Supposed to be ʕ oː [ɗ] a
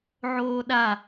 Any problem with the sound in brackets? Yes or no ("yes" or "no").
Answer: no